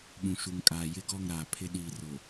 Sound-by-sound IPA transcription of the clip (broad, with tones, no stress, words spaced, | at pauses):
ɓũ˨ʃu˨ŋ kʼaː˨jɪ˦˨ɡɔ˦˨ŋ ɾaː˨pʰɪ˦ ɗiː˨rʊ˨